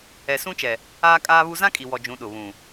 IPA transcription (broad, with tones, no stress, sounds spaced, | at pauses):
ɛ˨ s ũ˦ t͡ʃ ɛ˨ | aː˦ kʼ aː˦ β u˦ z ã˦ kʼ i˨ w ɔ˨ d͡ʒ ũ˨˦ ɗ ʊ˨ β ũ˨